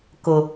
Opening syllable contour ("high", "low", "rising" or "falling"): low